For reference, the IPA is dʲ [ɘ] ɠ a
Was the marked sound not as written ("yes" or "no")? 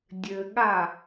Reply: no